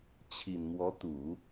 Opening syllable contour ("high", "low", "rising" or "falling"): low